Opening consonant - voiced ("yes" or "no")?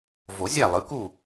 yes